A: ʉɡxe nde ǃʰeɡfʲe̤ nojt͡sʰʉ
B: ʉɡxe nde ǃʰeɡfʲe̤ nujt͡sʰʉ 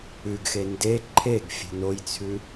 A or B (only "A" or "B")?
A